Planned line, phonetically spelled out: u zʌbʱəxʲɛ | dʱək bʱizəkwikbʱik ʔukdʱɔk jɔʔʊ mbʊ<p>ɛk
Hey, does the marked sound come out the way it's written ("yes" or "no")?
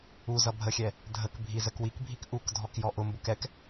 no